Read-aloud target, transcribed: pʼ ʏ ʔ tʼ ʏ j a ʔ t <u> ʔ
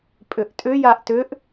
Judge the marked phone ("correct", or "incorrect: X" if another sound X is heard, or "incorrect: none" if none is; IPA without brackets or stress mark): incorrect: ʏ